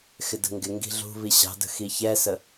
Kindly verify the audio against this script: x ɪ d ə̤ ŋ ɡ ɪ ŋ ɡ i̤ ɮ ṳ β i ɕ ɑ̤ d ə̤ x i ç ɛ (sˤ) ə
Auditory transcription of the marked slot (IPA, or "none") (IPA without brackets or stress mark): s